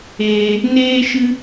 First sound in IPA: eː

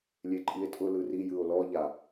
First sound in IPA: lʲ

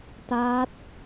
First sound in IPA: t̪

